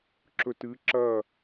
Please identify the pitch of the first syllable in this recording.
low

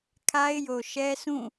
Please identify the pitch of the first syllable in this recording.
high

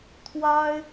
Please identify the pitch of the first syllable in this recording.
high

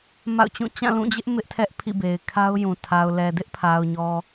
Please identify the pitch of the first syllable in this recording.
falling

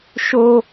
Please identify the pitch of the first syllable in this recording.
high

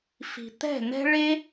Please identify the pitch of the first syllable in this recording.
low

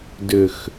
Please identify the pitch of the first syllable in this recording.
low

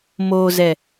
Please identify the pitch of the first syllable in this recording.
low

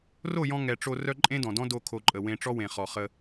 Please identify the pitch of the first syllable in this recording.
falling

